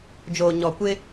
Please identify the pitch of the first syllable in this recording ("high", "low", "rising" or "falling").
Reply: low